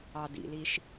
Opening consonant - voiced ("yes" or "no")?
yes